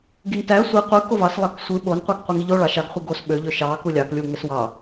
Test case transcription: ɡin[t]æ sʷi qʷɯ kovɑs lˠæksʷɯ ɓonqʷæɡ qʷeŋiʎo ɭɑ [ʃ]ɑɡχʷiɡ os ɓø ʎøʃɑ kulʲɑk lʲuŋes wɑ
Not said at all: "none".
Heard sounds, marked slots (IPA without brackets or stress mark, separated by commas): t, ʃ